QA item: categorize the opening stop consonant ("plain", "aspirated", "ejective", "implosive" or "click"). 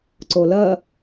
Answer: click